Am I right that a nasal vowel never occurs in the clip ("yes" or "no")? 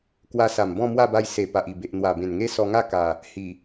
no